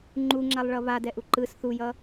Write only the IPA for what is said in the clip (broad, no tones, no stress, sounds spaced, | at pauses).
ŋ͡ǃ u ŋ͡ǁ a lˠ ɭ ʌ β a d ɛ ʔ u ǃ ɯ s θ u j ʌ